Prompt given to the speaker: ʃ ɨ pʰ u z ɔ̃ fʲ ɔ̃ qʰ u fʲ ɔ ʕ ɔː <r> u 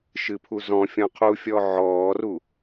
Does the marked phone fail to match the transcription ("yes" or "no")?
no